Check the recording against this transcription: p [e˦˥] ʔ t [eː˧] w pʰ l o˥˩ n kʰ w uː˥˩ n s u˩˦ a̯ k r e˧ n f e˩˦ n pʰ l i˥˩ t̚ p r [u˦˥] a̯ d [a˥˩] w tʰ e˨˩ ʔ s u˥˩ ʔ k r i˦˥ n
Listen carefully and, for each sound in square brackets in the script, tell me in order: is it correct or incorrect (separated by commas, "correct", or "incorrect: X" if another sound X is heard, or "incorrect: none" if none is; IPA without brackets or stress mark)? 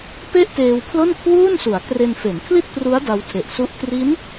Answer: incorrect: e˥˩, correct, correct, incorrect: a˦˥